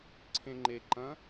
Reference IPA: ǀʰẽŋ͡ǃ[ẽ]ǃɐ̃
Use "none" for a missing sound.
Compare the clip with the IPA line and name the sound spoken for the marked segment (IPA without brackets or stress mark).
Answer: e